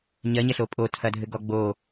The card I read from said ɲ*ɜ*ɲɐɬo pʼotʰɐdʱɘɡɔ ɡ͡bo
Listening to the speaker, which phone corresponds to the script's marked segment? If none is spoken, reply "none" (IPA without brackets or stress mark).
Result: ɜ